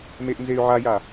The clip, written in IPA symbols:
m e ʔ n z e y̯ ʕ a j a

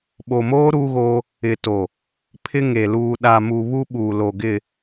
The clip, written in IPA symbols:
ɓ o˨ m oː˦ ɾ uː˦ ɣ oː˦ | ɪ˨ t o˨ | pʰ ɪ˦ ŋ e˨ l uː˨ ɗ a˨ m u˨ β u˦ ɓ uː˨ l o˨ ɡ ɪ˦˨

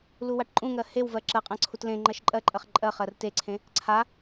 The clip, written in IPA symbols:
l u w a ʈ ǃʼ ũ ŋ ɜ h e w v ɜ ǁ ɜ qʼ ã ǀʰ u t l ẽ ŋ͡ǃ ɜ ʃ ǃʼ ɜ ǃʼ ɜ χ ǃʼ ɜ χ ɜ r t e ǀʰ ẽ | ǀʰ a

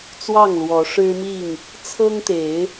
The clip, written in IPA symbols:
t͡s w ɑ˥˨ ŋ l w ɔ˨˦ ʂ ɻ̩˦ m i˥˨ ŋ | t͡sʰ ɤ˦ ŋ t̪ e˨˦ ɪ̯

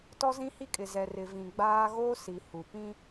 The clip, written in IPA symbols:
t ɔ˦ z ĩ˦ h i˦ kʼ ɪ˨ z ɛ˨ r ɪ˨ v ĩ˨ ɡ͡b aː˦ ɣ oː˦ s i˨ h u˨ p ĩ˦

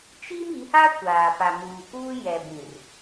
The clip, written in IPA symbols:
t͡ʃ i˦ m i˨˦ h a˦ kʷ aː˨ p a˨ m uː˨ k uː˦ j ɛ˨ b ĩ˨ r

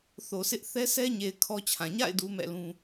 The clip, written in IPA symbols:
θ o˨ sʰ ɪ˦ ʔ θ ɛ˦ s ɛ˦ ɲ e˨ ɪ̯ kʰ ɔ˦ t͡ɕʰ ã˨ ɲ a̰˦˨ ɪ̯ d u˦ m ɛ̰˦˨ l ũ˦

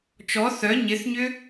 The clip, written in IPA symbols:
t͡ʃ ɔ θ œ ɲ ɪ θ ɲ ʏ

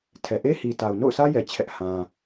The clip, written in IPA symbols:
tʰ ɛ˨ ʔ e˦ h i˨ t a˨ ʊ̯ n o̰˦˨ ʊ̯ s ä˦ j ɛ˨ t͡ɕʰ ɛ˦ ʔ h ã˦

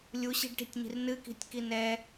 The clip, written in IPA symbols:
lʲ u ɕ i̤ ɖ ʈ i̤ tʲ ɲ i̤ r n ɨ k i̤ tʲ k i n ɛ

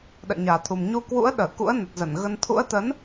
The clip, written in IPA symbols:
ɗ ə̰ː˧˨ ɲ aː˨˩ t̪ʰ u˨˩ m ɲ u˧ k w ṵ˧˥ ə̯ ɗ əː˧˩ k ṵ˧˥ ə̯ n ə˨˩ t̚ z ə˧˩ n ɣ ə˧ n t̪ʰ ṵ˧˥ ə̯ t̪ ə˨˦ n

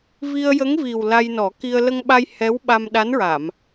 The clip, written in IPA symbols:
v i˧ ə̯ j ə˧˥ ŋ v i˨˩ w l a˧ j n ɔ˨˩˦ k i˧ ə̯ l ə˧ ŋ ɓ a˧ j h ɛ˧˥ w ɓ a˧ m ɗ a˧˥ n ɹ a˨˩˨ m

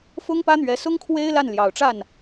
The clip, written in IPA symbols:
f ʊ˥ ŋ p ä˥ n̪ ɥ ɛ˧˥ s ʊ˥ ŋ kʰ w e˥ ɪ̯ l a˥˩ n l j ɑ˨˩ ʊ̯ ʈ͡ʂ a˥˩ n

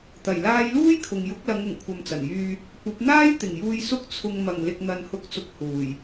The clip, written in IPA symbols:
t̪ ɐ˨˩ j l aː˧ j l uː˥ j kʰ ʊ˨ ŋ j ʊ˨˥ k̚ l ɐ˨˧ ŋ ʊ˨˩ ŋ kʷʰ ɐ˨ m t͡s ɐ˨˩ n j yː˧ | kʷ ɐ˨˥ p̚ n̪ aː˥ j t̪ ɪ˨˩ ŋ j uː˨ j s ʊ˨˥ k̚ t͡sʰ ʊ˨ ŋ m ɐ˨˩ ŋ l ɪ˨ k̚ n̪ ɐ˨ n h ʊ˨˥ k̚ t͡s ʊ˨ k̚ h uː˨˩ j

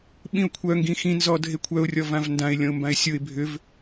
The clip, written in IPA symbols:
ɓ ĩ ʊ̯ kʷʰ œ ŋ ɡ ĩ x ĩ n z ɔ dʱ e kʷʰ œ ʊ̯ rʲ ɔ v ã v n d ã ɪ̯ lʲ ɔ̃ ʊ̯ m b ã ɪ̯ sʲ o ɪ̯ bʱ ʏ v

